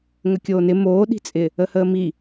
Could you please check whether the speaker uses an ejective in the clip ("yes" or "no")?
yes